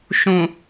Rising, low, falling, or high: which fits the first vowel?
low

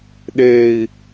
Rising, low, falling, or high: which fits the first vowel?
low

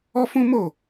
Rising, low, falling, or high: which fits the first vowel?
high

